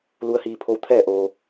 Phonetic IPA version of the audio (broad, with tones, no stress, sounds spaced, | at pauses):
l u˧˥ ə̯ h iː˧ pʰ o˧˥ w t̪ʰ ɛː˥˨ ʔ oː˧